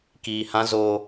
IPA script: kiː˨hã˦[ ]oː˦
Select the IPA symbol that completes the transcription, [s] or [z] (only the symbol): z